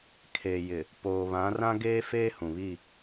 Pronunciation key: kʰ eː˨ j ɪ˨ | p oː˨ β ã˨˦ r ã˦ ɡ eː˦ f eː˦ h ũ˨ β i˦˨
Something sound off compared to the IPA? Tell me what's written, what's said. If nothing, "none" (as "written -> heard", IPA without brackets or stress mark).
none